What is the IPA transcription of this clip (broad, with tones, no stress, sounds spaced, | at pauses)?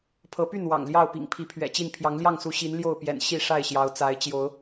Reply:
pʰ ɤ˨˦ p y˥˨ n w ɑ̰˨˩ ŋ l j ɑ˥˨ ʊ̯ p ḭ˨˩ ŋ pʰ i˨˦ pʰ ɥ ɛ̰˨˩ t͡ɕ i˥˨ n pʰ j ɑ˨˦ ŋ l j ɑ˥˨ ŋ s u˨˦ ɕ i˨˦ n l j o˥˨ ʊ̯ p j ɛ̰˨˩ n ɕ i˥˨ ʂ a˥˨ ɪ̯ ɕ j ɑ˨˦ ʊ̯ t͡s a˨˦ ɪ̯ t͡ɕ j o˨˦ ʊ̯